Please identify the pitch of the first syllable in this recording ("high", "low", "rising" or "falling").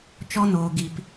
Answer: high